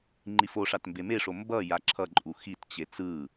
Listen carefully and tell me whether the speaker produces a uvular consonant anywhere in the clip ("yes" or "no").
no